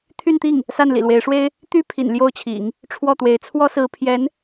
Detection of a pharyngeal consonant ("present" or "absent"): absent